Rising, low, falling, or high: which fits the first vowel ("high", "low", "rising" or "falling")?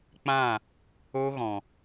falling